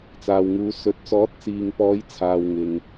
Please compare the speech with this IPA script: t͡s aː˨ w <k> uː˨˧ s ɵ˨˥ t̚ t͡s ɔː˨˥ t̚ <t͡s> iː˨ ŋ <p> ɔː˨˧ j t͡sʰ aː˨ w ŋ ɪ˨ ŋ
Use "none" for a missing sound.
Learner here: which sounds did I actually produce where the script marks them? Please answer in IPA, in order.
ŋ, t͡s, p

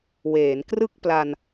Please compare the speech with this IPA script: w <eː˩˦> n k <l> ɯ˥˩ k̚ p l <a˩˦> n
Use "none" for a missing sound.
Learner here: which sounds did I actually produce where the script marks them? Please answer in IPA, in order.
eː˩˦, r, a˧

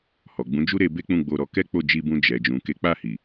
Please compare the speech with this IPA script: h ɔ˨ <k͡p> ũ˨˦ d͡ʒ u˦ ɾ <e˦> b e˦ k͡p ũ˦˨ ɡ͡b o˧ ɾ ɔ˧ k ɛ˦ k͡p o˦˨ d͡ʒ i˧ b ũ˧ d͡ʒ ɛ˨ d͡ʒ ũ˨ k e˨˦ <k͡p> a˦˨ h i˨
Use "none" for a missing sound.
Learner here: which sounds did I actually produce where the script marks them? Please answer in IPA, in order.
ɡ͡b, e˧, k͡p

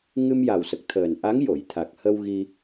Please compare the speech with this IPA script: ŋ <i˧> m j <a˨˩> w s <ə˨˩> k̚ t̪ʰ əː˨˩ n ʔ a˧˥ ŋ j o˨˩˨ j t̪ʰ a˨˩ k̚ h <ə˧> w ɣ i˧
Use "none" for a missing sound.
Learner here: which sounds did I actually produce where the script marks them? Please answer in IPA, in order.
ɨ˧, a˨˩, ə˨˩, ə˧

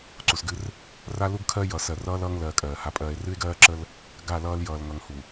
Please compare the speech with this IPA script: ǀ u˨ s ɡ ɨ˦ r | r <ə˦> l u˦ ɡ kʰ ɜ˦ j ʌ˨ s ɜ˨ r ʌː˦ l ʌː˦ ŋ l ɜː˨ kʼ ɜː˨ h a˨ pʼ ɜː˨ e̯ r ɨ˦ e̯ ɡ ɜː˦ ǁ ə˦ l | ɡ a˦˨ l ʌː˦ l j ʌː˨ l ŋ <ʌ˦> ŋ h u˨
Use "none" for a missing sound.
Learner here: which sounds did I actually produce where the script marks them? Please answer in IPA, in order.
a˦, ʌ˨

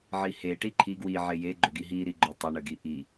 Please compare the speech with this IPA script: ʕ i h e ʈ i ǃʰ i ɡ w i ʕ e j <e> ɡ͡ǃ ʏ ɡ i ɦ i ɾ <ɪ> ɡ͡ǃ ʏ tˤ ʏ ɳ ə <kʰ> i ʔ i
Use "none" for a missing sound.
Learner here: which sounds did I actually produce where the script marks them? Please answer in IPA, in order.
e, i, ɡ

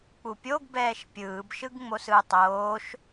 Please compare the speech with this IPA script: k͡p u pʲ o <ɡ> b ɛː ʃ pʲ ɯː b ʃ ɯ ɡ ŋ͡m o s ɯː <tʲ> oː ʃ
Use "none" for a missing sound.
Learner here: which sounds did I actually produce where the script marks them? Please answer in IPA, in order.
ɡ, tˤ

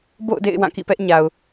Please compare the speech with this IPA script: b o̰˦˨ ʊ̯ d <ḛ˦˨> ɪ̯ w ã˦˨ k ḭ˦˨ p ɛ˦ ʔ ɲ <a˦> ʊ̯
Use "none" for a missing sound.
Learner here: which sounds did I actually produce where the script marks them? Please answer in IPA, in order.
ḛ˦˨, a˨

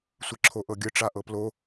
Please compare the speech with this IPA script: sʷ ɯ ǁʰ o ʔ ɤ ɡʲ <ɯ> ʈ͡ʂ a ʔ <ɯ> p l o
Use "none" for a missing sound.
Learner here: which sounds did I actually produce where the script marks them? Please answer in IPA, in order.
ɯ, ɤ

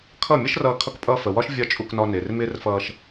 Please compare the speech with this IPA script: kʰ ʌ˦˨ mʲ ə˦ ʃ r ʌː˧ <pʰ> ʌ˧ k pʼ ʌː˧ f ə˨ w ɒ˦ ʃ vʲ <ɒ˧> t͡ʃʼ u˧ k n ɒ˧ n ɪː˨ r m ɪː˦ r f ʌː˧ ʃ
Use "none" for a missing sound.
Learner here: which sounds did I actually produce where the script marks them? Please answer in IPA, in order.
kʰ, ɒ˦

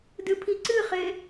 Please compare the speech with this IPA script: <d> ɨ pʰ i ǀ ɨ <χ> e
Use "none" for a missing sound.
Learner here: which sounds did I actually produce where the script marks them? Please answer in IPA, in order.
d, χ

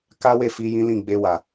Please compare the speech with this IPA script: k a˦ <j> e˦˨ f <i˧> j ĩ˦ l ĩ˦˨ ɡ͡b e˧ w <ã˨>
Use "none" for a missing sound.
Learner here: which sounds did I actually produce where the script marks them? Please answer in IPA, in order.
w, i˧, a˨

